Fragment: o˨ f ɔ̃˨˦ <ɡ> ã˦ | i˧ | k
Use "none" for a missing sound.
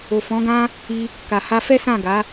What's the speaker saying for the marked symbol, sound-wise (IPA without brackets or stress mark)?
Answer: ɡ